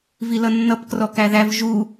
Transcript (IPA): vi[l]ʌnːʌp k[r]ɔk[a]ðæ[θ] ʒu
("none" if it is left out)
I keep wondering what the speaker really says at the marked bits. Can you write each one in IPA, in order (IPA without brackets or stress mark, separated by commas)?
l, r, æ, v